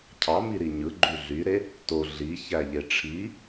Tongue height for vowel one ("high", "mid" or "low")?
low